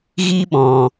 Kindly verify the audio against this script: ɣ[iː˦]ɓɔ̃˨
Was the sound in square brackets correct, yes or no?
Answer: yes